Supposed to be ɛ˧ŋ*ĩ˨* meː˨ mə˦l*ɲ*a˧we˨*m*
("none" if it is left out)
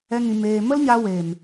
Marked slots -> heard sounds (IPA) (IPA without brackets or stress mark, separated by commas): ĩ˨, ɲ, m